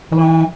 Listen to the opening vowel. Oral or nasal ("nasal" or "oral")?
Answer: nasal